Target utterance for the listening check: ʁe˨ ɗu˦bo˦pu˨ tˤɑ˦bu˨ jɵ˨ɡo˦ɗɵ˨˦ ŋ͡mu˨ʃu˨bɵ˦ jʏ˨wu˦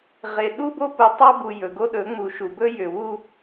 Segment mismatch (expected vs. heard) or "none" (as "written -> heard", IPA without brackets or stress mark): none